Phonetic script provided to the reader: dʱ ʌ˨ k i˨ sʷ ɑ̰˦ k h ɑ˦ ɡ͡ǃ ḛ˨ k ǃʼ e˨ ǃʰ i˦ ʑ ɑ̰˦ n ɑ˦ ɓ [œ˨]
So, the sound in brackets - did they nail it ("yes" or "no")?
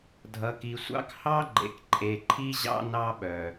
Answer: yes